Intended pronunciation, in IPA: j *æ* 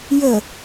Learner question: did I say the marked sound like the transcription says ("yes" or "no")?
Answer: no